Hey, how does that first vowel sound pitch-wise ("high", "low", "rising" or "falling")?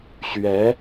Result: rising